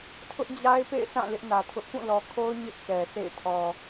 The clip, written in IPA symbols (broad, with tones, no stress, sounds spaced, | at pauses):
tʰ ʊ˦ ʔ d͡ʑ a˦ ɪ̯ p ḛ˦˨ ɪ̯ s ã˦˨ l ɪ˦ ʔ n ä˨ tʰ ʊ˦ ʔ k ũ˦˨ l ɔ˨ kʰ o˦ ʊ̯ ɲ ɪ˦ ʔ k ɛ˨ s ḛ˦˨ ɪ̯ tʰ ɔ˨